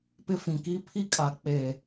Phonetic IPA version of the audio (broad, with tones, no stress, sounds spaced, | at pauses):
p ɪ˦ f ĩ˨ k i˦ pʰ i˦ kʼ a˨ k͡p e˨